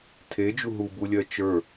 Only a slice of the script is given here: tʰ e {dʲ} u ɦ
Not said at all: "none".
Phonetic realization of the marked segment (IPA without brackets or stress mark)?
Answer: d͡ʒ